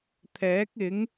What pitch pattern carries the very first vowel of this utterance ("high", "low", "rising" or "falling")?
rising